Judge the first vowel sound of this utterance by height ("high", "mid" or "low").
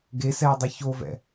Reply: mid